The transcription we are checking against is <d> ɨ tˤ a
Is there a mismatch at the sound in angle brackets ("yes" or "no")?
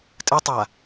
yes